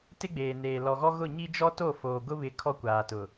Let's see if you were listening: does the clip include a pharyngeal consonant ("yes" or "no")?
no